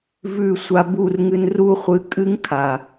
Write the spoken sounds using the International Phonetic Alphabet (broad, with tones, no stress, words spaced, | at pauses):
vʉ˦˨ sʷa˧bu˦˨rŋɨ˧n ru˦χʷɨ˧ kʼɨ˦ŋkʰa˨